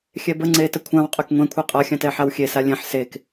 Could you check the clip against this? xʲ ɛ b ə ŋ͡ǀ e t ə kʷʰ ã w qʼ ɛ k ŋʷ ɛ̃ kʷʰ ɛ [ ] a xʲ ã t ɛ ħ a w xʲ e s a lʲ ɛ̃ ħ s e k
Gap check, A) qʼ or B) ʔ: A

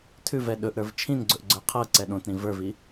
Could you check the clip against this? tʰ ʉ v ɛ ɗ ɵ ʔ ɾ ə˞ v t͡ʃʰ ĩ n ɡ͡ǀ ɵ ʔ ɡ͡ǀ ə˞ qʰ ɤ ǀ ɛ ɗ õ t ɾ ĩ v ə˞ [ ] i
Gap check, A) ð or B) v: B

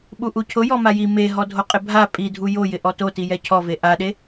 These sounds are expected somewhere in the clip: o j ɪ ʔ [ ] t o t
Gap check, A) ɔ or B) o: A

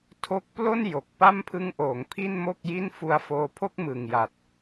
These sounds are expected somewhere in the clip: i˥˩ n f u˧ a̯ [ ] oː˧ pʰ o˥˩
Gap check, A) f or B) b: A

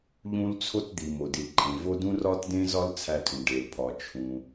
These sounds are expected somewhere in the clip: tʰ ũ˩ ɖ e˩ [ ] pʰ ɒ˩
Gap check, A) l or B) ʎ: A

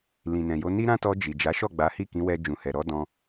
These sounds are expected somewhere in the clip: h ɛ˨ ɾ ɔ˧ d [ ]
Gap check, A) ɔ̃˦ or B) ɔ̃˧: B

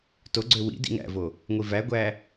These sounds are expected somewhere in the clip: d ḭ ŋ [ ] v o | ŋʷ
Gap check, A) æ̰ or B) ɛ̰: A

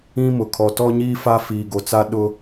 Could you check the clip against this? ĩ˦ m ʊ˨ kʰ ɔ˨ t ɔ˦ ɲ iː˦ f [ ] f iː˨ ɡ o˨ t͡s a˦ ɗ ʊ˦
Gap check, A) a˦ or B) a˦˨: A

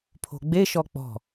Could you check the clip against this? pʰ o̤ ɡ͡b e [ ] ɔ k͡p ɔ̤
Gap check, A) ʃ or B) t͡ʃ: A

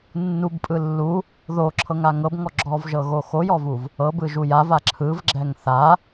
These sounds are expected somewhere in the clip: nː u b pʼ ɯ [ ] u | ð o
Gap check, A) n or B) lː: B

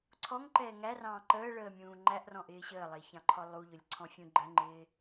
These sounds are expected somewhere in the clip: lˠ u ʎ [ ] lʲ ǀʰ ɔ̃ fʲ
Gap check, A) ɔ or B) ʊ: B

